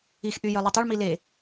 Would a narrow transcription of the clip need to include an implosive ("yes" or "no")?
no